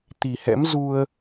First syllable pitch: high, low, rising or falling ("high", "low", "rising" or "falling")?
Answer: low